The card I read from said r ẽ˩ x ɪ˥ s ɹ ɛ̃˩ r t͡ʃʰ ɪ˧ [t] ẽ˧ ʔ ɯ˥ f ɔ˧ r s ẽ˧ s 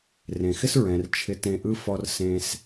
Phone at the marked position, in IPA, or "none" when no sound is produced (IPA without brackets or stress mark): t